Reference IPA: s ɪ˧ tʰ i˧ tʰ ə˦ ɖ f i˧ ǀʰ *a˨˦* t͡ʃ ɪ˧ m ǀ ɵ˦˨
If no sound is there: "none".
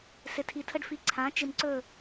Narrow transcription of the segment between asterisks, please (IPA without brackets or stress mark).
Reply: ã˨˦